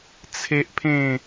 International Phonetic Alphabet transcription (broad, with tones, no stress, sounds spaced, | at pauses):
t͡sʰ e˦ ʔ pʰ ẽ˥˧